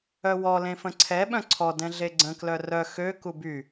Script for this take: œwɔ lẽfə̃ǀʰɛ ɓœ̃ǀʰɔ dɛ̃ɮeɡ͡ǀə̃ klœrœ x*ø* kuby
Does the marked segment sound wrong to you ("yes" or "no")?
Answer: no